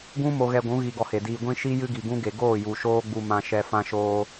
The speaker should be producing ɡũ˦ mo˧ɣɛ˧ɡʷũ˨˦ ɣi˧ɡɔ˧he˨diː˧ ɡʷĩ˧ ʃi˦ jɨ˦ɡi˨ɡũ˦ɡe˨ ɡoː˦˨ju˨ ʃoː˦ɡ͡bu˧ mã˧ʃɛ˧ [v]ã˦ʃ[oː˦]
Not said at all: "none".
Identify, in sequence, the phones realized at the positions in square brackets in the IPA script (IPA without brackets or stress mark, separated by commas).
f, oː˦